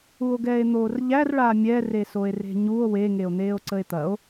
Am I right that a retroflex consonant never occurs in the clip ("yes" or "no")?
no